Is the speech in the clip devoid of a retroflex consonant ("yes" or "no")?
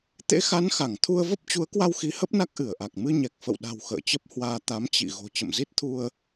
yes